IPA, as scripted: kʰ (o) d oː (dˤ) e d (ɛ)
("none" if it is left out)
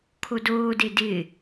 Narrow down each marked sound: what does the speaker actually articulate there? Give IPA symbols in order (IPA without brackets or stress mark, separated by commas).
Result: o, d, ɪ